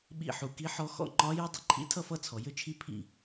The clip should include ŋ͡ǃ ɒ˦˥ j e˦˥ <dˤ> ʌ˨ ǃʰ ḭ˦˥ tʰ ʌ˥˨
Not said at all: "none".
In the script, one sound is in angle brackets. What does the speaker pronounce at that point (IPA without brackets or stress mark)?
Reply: dˤ